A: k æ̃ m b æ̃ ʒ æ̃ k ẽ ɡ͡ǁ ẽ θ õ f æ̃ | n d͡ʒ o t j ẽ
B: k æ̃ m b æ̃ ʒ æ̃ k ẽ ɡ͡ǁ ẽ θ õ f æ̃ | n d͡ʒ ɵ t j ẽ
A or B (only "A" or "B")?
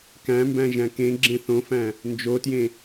A